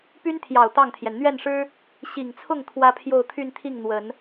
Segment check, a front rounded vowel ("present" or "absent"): present